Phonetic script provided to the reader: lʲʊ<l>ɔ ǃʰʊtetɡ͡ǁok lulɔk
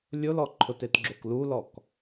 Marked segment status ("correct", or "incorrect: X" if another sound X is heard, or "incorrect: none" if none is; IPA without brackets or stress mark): correct